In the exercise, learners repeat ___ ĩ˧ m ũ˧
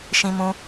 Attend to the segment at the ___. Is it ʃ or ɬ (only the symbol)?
ʃ